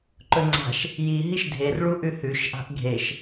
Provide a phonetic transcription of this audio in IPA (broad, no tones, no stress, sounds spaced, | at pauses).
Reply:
ǃ ɵ ŋ͡ǀ a̤ ʃ | j i ɦ i ʃ dʱ e r ɭ u ʔ ʉ h ʉ ʃ ʔ a̤ ʔ ɡʱ e ʃ